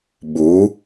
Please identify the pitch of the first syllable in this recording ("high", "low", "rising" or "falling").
rising